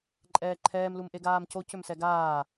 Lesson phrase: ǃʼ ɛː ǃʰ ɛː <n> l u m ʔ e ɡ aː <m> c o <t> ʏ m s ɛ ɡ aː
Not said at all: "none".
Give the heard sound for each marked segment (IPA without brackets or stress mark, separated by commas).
m, m, c